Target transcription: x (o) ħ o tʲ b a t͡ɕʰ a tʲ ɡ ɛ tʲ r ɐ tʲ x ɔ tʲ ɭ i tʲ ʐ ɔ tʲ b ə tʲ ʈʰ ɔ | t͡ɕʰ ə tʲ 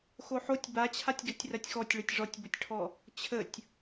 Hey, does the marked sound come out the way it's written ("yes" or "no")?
yes